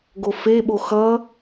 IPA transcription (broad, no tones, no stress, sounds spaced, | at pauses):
ɡ o f e ɓ o x ʌ